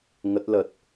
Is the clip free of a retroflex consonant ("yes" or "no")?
yes